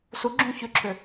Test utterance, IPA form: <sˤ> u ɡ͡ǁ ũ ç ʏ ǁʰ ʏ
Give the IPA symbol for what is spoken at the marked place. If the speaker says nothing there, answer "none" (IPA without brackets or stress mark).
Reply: s